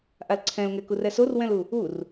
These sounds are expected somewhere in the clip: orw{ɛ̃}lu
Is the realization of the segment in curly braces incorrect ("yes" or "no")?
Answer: no